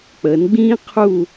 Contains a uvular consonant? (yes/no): yes